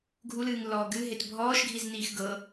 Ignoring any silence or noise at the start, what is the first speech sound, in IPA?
ɡʱ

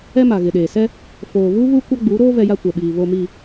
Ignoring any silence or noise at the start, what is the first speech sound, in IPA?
ɛ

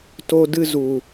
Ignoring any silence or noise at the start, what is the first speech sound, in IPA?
t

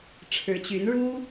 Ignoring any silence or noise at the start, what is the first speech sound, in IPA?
ʈ͡ʂʰ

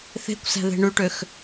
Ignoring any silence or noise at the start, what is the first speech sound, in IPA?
θ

